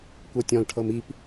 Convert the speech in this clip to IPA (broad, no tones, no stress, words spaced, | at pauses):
kʷɤtʲɔ̃lʈʰɤm ip